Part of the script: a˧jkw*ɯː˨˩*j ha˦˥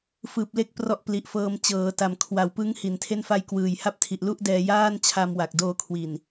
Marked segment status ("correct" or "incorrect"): correct